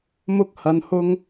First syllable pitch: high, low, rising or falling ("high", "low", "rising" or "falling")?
high